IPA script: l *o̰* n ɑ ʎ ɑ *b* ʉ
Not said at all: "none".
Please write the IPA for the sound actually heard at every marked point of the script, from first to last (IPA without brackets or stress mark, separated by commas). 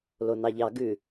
o, ɡ